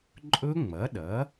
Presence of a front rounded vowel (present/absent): absent